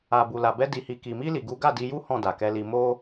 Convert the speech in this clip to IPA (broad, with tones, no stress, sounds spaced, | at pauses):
a˨ b u˨ l a˨ b ɛ˧ d i˧ h i˧ k i˨ m i˧ l i˨ ɡ u˨˦ ɡ a˦˨ d i˧ j u˦ h ɔ̃˦˨ d a˨ k ɛ˧ l i˧ m o˦